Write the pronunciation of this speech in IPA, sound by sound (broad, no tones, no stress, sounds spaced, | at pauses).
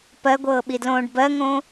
p ɜ ɡʷ ɤː ɓ i d l õː ɖ b ɜ ŋ õː